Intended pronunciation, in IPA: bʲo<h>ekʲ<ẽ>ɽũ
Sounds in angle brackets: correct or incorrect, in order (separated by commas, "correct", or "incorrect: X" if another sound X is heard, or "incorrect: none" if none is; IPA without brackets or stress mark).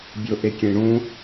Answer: incorrect: ʔ, correct